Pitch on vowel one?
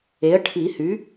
rising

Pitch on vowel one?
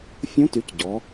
rising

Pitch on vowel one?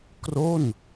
falling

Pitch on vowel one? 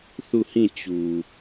falling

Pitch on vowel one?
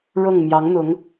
falling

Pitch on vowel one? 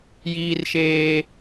high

